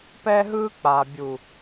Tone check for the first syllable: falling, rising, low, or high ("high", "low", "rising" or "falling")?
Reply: high